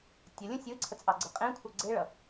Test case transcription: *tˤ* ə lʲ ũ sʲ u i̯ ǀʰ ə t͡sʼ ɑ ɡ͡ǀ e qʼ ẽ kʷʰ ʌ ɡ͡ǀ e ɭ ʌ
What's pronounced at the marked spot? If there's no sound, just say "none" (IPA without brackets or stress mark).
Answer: tʲ